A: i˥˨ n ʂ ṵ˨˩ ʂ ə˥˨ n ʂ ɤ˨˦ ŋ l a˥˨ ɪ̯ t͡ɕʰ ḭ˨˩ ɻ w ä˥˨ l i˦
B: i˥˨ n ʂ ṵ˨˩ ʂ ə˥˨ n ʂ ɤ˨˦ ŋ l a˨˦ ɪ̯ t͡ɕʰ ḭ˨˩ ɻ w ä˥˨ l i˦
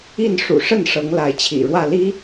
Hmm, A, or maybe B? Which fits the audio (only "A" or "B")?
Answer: B